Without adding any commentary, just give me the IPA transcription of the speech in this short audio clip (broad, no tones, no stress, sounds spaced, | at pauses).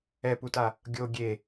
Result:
ɛ p u t a | ɡʲ o ɡʲ e